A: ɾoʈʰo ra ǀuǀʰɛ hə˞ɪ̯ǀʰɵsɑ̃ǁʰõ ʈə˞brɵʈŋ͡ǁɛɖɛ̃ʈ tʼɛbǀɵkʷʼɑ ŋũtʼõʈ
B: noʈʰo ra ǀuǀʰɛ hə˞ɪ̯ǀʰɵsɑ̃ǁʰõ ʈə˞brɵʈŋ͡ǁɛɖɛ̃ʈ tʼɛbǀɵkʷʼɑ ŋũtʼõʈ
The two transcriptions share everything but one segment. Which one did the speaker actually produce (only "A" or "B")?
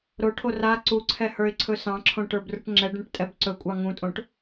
A